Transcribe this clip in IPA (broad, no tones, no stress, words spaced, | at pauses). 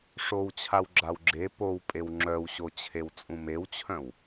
ʂowt͡ɕʰaw ɡ͡ǁawɡ͡ǁe powpʼew ŋ͡ǁœwɕot͡ɕʰew t͡sʼũmewt͡ɕʰœ̃w